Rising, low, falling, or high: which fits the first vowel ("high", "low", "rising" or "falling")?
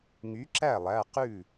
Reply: rising